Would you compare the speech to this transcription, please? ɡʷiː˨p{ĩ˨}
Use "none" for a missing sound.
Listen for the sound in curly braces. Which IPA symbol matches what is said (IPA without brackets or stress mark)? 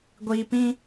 ĩ˦